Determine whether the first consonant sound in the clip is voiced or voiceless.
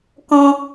voiceless